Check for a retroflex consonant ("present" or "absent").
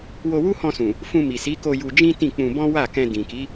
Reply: absent